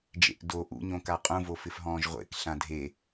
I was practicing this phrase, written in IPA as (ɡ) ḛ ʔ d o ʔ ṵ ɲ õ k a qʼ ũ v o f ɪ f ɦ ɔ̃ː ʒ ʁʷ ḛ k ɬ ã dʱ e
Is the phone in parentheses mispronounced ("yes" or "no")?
yes